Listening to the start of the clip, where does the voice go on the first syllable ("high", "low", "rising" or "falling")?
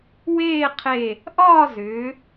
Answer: falling